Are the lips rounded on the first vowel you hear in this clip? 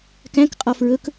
no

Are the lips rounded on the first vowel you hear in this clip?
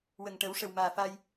no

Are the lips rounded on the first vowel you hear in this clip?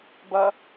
no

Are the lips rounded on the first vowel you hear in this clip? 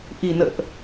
no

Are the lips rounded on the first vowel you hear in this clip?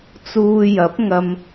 yes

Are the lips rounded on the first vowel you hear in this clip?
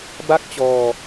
no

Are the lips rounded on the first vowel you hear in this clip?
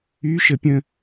yes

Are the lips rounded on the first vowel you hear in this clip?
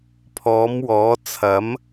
yes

